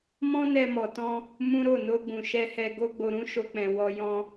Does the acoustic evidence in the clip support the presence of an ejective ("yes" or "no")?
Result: no